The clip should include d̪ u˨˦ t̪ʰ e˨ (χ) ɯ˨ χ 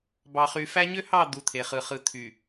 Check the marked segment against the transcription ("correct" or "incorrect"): correct